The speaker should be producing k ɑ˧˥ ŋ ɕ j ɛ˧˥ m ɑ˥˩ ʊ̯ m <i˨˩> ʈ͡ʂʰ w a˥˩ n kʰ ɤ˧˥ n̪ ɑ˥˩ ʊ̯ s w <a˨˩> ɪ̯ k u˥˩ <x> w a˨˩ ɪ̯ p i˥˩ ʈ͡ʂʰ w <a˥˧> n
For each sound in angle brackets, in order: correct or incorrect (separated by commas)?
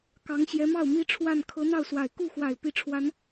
incorrect, correct, correct, incorrect